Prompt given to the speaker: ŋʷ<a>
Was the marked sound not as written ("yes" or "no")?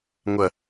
yes